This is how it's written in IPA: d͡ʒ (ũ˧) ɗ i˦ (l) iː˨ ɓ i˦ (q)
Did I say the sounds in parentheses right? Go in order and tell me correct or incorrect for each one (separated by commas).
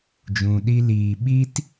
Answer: correct, correct, incorrect